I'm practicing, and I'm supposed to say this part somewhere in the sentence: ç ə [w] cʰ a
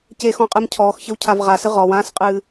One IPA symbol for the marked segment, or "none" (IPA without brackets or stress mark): w